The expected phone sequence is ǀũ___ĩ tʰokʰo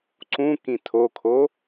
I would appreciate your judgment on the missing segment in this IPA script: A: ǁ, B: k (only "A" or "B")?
B